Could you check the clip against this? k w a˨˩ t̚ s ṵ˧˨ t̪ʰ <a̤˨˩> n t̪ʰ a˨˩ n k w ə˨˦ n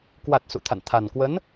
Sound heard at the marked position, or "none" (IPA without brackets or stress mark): a̰˧˨